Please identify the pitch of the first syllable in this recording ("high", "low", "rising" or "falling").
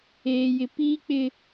high